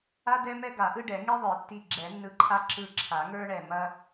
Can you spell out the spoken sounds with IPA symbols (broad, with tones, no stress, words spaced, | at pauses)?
a˥dɛ˥mɛ˥ ɡa˨˩˦ʔɯ˥ɖɛ˨˩˦ ŋi˥ðˤə˞˨˩˦tːi˧˩ ɡ͡ǁɛ˨˩˦nːɯ˧˩ǃʰa˥ ǁɯ˧˩ ǁʰa˨˩˦ŋə˞˥ɳɛ˧˩ mɐ˥